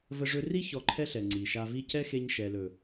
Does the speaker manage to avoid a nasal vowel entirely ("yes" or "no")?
yes